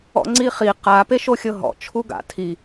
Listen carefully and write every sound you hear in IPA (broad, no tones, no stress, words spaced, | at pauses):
ɔ̰ŋ͡ǀiχi qa peʃoxʲɤɦɔ̰ t͡ʃʰuɡa̰ tʰi